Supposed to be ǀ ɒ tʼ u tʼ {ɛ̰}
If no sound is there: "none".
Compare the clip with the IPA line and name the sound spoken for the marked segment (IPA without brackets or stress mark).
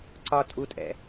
ɛ̰